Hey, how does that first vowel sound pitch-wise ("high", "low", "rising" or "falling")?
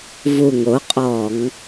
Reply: low